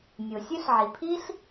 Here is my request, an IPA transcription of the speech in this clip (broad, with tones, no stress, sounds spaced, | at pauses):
nʲ o˩ sʲ ø˥ ɬ ʕ i˩ pʰ i˥ ɬ